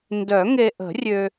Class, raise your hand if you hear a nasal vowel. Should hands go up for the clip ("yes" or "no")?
no